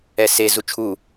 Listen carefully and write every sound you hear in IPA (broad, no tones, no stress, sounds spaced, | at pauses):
ɛ s e z u t͡ʃʰ u